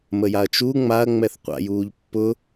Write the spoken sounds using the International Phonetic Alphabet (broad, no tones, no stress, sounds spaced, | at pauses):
m ə j a ɐ̯ t͡ʃ u ŋ͡m a ɐ̯ ŋ͡m ɛ θ qʷ a̰ j uː ʎ pː ʊ